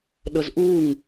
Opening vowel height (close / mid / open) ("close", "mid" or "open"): mid